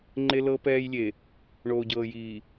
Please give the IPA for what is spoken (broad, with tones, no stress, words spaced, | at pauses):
ŋ͡ǃe˦lɤ˦ pɛː˦jlʲe˨ | ɳoː˨ɟɤː˨jiː˨